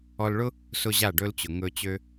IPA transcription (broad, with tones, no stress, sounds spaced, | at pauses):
ɔ˧ l ɭ ʊ˦ | s ʊ˦ ʑ a˦˨ ɖ ɵ˦ l t͡ɕ ʊ˨ ŋ ɵ˧ t͡ɕ ø˦